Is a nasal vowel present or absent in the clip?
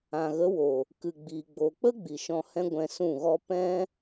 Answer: present